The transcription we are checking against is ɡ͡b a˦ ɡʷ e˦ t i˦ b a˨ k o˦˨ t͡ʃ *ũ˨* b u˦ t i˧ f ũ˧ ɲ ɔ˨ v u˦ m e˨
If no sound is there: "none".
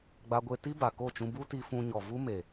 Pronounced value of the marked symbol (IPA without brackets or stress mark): ũ˧